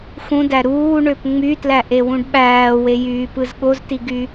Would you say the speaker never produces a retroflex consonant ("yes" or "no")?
no